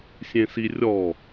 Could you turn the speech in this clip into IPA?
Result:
sʲ ẽ s i rʲ ɔ

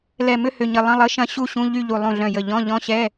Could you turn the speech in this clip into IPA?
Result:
l ɛ˧˩ m ʏ˥˧ h ʏ˧˩ ɲ ə˧˩ lˠ ə̃˧˥˧ lˠ ə˧˥˧ ʃ ɐ̃˥˧ ɕ u˥˧ ɕ ũ˧˥˧ ʎ y˥˧ ʎ u˧˩ lˠ ũ˧˩ ɮ œ̃˧˩ j ə˧˩ ʎ ɔ̃˧˥˧ ʎ ɔ̃˧˥˧ ɕ ɛ˧˥˧

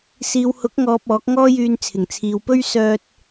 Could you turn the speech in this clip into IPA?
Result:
s iː˨ w h ʊ˨˥ k̚ ŋ ɔː˨ p̚ ɔː˨˥ k̚ ŋ ɔː˥ j yː˧ n t͡sʰ ɪ˨˩ ŋ t͡sʰ iː˨ w p ɵ˥ ɥ s œː˧ t̚

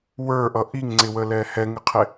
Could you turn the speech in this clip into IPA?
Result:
w ə˞ ʔ ʌ ʔ i ŋ ŋ͡ǀ ɪ w ə l ɛ h ɛ ŋ ɪ qʰ ɪ

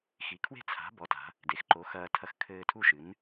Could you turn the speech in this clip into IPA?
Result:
x i˩˧ kʰ w e̤˥˨ t͡sʰ a̤˩˥ b ɔ˩˥ t a̤˩˧ | d e˩˧ x ǃ o˩˥ x ɐː˧ tʰ ɐ˧ x kʰ ɘː˧ tʰ u˥˨ ʃ ɨ˩˥ n

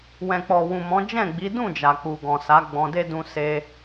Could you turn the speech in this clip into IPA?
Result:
w ɛ̃˨ k͡p ɔ˨ w ũ˨ m ɔ̃˨˦ d͡ʒ ɛ̃˦˨ ɡ͡b i˨˦ d ũ˦˨ d͡ʒ a˨ k͡p u˨ ɡ ɔ̃˨ s a˨˦ ɡ͡b ɔ̃˧ d e˦ d ũ˧ s e˧

